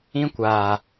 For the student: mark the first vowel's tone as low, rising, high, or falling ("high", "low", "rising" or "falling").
high